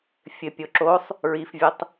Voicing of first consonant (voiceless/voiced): voiceless